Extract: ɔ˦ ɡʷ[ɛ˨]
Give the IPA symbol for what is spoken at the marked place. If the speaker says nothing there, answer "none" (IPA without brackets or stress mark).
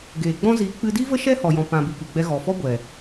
ɛ˨